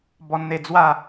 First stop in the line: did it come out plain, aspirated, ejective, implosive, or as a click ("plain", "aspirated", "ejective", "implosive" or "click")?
plain